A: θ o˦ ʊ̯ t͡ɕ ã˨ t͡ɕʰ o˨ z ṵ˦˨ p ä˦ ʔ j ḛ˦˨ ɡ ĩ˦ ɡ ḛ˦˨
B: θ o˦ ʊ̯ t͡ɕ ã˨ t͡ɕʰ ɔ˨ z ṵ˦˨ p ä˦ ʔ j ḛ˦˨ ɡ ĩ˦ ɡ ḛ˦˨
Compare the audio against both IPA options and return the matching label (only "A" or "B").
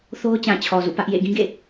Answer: B